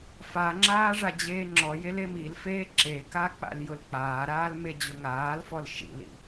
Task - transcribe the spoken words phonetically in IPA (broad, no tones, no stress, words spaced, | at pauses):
faŋ͡ǁaː ʐad͡ʑeːŋ͡ǁɔjel emilfeː ǁeka k͡pa̰ljʊlk͡paːɾaːl med͡ʑʊŋaːlfɔl ʃḭlḭ